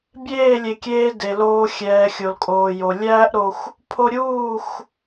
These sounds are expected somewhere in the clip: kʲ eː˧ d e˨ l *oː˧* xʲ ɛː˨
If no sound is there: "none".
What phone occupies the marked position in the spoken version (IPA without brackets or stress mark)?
oː˧